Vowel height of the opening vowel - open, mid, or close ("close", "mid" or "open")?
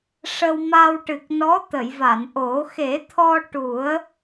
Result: mid